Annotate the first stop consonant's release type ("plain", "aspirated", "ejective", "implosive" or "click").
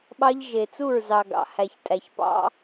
implosive